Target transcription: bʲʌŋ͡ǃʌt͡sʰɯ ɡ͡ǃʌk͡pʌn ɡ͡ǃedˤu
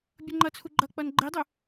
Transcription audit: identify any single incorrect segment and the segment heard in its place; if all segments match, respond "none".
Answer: ɯ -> u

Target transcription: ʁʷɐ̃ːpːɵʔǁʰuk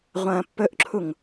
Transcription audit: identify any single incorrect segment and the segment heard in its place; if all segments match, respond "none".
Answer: k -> ŋ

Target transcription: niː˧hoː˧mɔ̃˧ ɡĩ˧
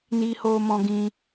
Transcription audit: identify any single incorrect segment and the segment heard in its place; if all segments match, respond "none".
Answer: none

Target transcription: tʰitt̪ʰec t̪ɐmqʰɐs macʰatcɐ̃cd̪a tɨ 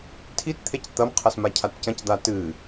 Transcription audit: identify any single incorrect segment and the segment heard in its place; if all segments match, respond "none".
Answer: none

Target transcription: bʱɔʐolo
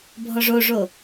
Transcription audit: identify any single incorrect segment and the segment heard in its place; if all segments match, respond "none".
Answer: l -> ʐ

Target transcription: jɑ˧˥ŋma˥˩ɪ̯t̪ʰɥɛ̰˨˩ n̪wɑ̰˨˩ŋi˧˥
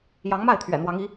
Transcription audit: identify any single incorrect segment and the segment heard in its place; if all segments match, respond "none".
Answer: ɑ̰˨˩ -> ɑ˧˥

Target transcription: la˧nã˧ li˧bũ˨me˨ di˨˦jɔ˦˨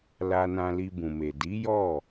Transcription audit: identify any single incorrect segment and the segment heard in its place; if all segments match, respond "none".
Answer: none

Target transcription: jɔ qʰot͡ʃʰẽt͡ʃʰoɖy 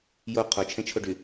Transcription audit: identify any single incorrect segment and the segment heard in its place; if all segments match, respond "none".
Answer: ɔ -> o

